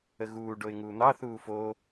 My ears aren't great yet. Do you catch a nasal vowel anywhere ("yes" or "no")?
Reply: no